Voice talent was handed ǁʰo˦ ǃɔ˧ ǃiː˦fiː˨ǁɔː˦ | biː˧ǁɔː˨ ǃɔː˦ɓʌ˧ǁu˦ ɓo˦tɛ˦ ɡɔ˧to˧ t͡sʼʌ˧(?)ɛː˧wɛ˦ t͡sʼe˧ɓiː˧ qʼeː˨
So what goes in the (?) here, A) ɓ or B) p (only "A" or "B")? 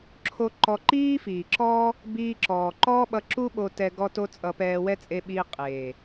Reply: B